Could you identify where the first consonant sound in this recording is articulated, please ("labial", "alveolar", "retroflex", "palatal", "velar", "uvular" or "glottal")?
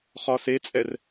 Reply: uvular